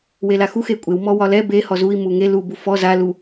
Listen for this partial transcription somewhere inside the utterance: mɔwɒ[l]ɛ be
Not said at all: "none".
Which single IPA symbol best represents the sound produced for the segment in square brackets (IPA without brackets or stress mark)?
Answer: l